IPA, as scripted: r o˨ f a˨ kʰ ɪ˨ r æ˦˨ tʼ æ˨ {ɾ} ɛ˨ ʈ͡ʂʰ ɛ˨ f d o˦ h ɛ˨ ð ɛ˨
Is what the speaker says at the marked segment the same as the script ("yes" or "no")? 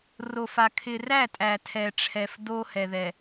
no